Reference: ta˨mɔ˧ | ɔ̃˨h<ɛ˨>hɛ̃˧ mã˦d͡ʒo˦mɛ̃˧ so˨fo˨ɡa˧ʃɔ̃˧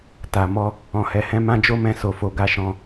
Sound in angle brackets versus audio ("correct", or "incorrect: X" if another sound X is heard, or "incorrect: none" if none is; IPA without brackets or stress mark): correct